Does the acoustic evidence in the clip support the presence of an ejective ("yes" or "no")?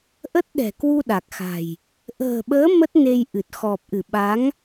no